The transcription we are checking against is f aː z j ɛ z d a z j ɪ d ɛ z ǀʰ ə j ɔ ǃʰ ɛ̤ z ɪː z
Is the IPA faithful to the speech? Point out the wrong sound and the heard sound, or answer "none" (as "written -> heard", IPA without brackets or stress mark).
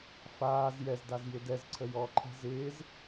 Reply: none